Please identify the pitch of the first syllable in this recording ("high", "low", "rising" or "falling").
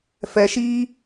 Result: low